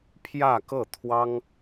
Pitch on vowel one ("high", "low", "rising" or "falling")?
falling